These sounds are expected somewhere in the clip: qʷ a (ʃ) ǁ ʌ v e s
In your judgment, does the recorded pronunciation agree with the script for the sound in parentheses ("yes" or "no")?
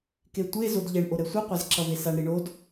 no